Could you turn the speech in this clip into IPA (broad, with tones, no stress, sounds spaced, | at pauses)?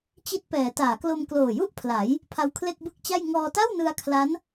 t͡ɕ i˦˥ t̚ p ɛː˩˦ t aː˩˦ k l o˧ m k l oː˨˩ j u˥˩ ʔ pʰ l a˩˦ j | pʰ a˧ w kʰ l e˥˩ k̚ b ɯ˥˩ k̚ t͡ɕ a˥˩ j ŋ ɔː˧ t a˥˩ w n ɯ˧ a̯ kʰ l a˦˥ n